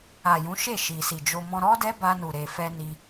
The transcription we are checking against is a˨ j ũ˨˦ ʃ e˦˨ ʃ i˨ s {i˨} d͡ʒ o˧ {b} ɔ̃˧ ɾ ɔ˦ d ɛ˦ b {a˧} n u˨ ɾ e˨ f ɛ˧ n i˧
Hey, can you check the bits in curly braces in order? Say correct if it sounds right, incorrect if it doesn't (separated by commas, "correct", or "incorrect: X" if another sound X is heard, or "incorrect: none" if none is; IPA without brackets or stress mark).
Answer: correct, incorrect: m, correct